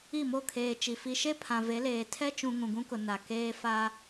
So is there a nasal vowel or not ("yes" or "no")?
yes